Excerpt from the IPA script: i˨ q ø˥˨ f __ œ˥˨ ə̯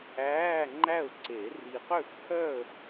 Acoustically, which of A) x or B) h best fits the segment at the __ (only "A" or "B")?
B